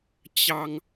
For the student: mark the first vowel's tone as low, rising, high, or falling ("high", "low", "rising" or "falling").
low